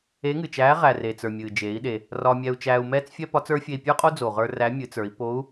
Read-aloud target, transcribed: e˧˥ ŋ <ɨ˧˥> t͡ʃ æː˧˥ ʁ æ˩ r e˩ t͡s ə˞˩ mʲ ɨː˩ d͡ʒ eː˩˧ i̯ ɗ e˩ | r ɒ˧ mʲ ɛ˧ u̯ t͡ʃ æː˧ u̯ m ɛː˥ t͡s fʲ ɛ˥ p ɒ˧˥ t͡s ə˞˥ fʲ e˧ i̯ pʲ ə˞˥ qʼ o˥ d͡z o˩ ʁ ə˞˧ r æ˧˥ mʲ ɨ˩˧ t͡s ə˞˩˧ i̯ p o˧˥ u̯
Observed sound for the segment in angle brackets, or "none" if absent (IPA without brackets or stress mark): ɨ˩